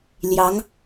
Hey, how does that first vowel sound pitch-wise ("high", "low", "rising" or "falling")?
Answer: rising